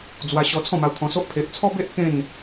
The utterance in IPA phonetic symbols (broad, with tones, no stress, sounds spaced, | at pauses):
d͡z w a˧ ɕ ɔ˧ t͡sʰ ɔ̃˥˧ m a˧ w t̪ʰ ɔ̃˧ s o˦ ʔ pʰ e˨ ʔ t͡sʰ ɔ˦ b e˦ ʔ k ẽ˥˧ n